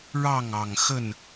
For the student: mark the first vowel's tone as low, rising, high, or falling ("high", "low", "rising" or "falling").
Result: falling